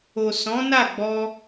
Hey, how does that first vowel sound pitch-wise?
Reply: low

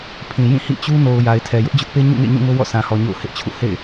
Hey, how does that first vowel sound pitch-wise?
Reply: low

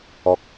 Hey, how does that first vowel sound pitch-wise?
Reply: low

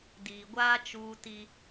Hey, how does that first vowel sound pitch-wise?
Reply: low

